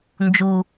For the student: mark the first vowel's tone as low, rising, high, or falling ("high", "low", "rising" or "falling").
low